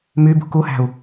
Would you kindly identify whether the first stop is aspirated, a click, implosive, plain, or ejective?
plain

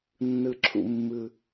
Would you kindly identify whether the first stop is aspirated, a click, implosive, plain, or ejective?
click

